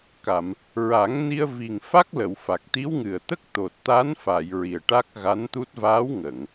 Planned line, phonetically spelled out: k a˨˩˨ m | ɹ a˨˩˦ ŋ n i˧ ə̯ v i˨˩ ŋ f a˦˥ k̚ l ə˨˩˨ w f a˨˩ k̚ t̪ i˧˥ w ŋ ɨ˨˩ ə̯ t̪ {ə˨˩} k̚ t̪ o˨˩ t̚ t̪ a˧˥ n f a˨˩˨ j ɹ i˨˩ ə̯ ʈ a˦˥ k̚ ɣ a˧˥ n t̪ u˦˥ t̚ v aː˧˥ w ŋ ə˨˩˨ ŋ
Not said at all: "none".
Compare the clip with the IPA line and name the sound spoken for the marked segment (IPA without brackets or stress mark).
ə˦˥